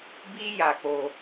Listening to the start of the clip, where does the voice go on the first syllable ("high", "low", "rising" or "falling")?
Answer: high